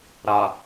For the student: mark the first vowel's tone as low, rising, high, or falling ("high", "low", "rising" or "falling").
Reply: low